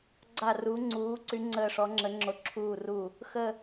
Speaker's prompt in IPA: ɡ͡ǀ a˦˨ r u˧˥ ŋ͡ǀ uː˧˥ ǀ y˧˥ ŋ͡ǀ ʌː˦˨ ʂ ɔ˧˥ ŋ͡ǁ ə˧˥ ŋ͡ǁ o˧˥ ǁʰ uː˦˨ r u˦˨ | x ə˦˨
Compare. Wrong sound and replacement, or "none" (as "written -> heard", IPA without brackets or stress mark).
ʌː˦˨ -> əː˦˨